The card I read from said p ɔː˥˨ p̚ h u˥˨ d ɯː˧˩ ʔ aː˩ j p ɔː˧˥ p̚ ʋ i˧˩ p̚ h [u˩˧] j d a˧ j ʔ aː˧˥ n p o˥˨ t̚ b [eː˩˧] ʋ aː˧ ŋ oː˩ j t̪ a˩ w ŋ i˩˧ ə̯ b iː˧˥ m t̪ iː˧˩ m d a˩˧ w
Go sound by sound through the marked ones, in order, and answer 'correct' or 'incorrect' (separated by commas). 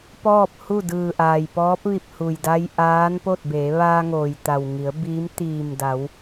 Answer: incorrect, correct